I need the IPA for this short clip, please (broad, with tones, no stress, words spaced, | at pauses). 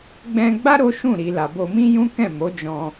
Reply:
ɡ͡bɛ̃˧ɡ͡ba˦ ɾo˦ʃũ˦˨ ɾi˨ la˨bo˧ mĩ˦jũ˦kɛ̃˦˨ mo˨˦d͡ʒɔ̃˧